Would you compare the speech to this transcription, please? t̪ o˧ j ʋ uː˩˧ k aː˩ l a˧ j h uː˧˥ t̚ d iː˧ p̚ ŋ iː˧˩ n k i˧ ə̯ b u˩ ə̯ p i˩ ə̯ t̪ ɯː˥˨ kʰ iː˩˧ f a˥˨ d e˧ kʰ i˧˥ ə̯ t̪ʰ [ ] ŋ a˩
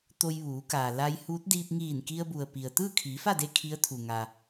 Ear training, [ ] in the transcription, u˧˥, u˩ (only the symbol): u˩